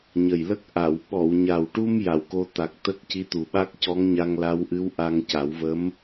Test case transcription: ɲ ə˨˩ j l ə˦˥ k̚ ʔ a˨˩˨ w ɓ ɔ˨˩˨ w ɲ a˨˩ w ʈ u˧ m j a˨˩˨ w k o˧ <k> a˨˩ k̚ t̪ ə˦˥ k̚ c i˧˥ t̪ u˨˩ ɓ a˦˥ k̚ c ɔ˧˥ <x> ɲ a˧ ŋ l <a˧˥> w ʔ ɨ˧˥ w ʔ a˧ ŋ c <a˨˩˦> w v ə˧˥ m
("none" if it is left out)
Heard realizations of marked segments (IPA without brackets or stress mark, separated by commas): t̪, ŋ, a˧˥, a˨˩˦